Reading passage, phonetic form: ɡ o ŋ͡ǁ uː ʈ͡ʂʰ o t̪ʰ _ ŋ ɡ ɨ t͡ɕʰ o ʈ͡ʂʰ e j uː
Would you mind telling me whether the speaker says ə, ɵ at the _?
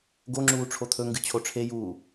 ɵ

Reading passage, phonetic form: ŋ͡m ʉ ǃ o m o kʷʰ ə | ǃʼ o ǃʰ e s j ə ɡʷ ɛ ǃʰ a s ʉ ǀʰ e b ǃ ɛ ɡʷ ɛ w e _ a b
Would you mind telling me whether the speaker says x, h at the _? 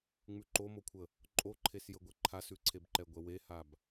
h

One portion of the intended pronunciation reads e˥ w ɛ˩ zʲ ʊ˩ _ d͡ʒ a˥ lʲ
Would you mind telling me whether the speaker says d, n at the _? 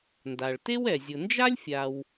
n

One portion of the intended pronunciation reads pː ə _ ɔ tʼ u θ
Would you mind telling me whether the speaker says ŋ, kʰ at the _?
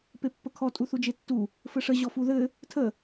kʰ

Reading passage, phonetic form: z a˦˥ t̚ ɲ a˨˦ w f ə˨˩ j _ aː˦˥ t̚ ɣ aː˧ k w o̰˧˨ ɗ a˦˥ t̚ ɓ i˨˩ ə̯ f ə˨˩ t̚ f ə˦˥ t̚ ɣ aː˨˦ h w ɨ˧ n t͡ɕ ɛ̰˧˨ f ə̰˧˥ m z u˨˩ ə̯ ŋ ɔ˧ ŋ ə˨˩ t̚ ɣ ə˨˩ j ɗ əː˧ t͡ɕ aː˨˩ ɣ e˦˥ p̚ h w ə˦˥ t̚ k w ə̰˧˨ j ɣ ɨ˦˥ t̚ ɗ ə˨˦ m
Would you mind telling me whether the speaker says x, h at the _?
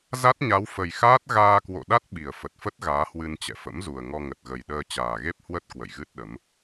x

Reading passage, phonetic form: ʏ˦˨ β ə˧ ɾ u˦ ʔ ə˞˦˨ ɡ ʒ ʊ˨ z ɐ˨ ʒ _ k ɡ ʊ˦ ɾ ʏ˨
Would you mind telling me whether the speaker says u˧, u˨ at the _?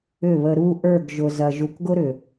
u˨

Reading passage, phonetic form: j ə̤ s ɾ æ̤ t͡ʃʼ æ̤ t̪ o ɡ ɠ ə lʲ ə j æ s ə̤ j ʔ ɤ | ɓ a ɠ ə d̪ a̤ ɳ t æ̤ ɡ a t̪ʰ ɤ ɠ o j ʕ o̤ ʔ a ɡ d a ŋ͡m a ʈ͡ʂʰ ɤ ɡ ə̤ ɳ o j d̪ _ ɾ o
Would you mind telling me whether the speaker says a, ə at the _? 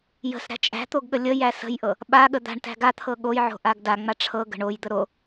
ə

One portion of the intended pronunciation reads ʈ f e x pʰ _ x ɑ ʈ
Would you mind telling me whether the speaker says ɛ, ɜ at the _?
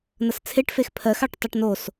ɜ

